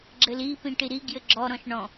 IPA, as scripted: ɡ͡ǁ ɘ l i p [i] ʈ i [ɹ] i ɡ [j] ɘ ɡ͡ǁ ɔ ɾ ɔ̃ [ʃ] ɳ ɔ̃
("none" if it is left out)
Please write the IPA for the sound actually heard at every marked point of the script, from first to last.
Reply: ĩ, ɾ, j, ʃ

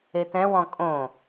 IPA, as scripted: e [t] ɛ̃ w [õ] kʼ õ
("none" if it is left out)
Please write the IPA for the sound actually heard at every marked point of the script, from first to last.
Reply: t, ɔ̃

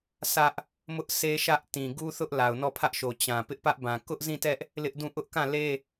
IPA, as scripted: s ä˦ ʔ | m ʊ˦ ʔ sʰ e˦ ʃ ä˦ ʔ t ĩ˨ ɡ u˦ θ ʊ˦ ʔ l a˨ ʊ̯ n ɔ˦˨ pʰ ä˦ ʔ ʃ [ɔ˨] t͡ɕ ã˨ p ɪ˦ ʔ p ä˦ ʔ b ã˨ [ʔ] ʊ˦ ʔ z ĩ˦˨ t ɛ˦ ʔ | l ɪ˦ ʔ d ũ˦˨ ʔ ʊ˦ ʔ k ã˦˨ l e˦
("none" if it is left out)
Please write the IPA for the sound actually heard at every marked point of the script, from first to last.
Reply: o˨, k

